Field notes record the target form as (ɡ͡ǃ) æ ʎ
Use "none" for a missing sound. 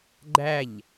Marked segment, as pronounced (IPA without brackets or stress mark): ɡ͡ǃ